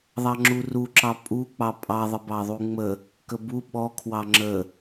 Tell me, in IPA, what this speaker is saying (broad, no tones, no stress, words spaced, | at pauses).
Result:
ðˤɑŋ͡ǁuruǁɑ pʼuk͡pɑ pʼɑðˤəbɑ ðˤuŋ͡mə | kəbu ɓɔ kʰwɑŋ͡ǁə